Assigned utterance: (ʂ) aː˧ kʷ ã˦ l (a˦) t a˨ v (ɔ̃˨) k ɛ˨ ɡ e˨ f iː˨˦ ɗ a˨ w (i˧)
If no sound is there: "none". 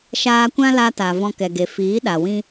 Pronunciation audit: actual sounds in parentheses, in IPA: ʃ, a˧, ɔ̃˧, ĩ˧

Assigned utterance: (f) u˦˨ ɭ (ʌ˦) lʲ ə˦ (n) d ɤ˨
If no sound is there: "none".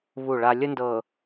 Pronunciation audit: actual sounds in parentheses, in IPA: β, a˦, n

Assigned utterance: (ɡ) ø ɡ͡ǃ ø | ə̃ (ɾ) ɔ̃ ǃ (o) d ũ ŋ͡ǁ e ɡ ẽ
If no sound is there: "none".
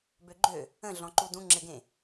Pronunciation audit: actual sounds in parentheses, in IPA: b, ɮ, u

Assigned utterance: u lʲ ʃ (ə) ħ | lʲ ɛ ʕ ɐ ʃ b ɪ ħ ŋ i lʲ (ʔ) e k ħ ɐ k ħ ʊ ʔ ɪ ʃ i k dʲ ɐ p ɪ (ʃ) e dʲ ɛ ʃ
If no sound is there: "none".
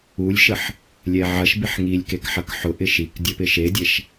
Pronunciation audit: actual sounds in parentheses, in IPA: ə, k, ʃ

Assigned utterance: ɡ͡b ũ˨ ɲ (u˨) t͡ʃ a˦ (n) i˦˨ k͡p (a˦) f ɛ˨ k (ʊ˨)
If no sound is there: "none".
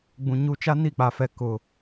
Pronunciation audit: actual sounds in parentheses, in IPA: u˨, n, a˨, ʊ˨

